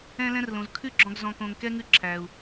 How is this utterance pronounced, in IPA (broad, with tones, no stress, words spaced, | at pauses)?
ɛ̃˧lɛ̃˧rlõ˨z kʰʉ˦ɡ͡ǁɔ̃˧ɡ zɔ̃˧kõ˧ŋ kɛ˦ŋʉ˦ ǁʰæ˧u̯